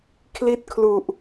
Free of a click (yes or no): yes